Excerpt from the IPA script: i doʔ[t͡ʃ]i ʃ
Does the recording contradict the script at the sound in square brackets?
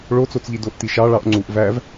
yes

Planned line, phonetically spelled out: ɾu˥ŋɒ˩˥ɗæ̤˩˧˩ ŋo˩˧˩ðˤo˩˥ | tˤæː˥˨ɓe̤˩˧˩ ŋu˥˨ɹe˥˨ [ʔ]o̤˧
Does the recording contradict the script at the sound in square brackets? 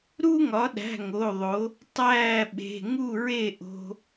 no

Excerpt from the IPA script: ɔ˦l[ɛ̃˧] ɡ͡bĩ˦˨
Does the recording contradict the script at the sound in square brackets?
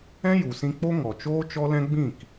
yes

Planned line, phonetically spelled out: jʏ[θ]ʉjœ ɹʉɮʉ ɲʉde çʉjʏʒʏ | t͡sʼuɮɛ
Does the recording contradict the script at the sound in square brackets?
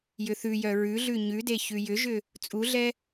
no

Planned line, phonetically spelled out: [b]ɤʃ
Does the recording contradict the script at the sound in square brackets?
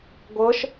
yes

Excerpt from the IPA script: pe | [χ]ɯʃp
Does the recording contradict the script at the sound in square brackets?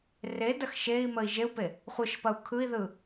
yes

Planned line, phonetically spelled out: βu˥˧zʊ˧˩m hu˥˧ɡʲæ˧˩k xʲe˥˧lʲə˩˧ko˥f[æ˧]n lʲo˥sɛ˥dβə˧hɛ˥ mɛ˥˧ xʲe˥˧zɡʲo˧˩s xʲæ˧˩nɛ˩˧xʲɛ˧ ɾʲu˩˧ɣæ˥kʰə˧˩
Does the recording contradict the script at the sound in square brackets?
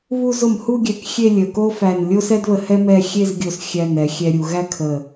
yes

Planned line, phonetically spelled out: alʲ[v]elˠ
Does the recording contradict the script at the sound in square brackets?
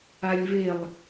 no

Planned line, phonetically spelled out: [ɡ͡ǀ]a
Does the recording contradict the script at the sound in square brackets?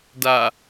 yes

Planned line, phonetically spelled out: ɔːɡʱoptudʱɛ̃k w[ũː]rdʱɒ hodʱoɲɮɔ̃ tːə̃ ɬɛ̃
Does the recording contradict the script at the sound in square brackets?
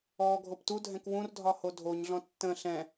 yes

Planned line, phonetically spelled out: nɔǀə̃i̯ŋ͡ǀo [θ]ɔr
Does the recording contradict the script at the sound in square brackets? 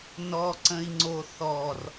no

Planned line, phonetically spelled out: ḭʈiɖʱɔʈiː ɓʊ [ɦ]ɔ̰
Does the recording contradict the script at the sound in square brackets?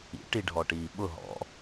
no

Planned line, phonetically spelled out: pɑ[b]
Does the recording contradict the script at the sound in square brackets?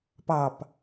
yes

